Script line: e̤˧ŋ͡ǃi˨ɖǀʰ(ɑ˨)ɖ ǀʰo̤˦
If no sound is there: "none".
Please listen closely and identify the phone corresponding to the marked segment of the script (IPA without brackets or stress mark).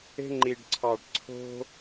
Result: ɑ˨